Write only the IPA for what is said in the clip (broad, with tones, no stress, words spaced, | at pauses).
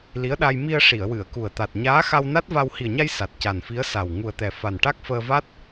li˧˥ə̯ɗa˧j mi˧ə̯ ʂi˨˩˨ə̯wɨ˨˩˨ə̯ku˨˩ə̯ t̪a˨˩t̚ ɲaː˧˥xa˧w na˦˥t̚va˧w hi˨˩ə̯ɲa˧j sa˨˩t̚ca˨˩nfi˧˥ə̯ sa˨˩w ŋu˨˩ə̯t̪ɛ˨˩ fa˨˩nʈa˦˥k̚fəː˧va˦˥t̚